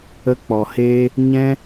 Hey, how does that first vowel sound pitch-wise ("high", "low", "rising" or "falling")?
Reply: high